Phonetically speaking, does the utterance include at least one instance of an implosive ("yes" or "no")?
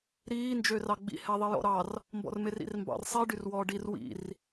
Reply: no